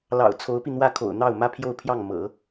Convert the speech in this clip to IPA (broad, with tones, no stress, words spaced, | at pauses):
lɑ̰˨˩ʊ̯ t͡sʰo˧˥ʊ̯pi˧n̪wä˥˩kʰo̰˨˩ʊ̯ n̪ɑ˥˩ʊ̯mä˥pʰjo˥˧ʊ̯pʰjɑ˥˩ŋ mɤ̰˨˩˦